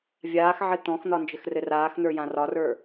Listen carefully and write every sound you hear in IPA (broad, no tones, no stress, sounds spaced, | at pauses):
vʲ aː x ʕ ɘ t̪ ɔ̃ x n̪ ɒ n d͡ʒ ɘ x r ɘ r aː x n̪ ə˞ j ã r ɒ r ə˞